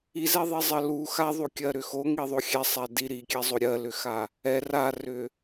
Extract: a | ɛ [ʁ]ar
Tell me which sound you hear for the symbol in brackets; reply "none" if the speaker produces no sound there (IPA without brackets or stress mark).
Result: r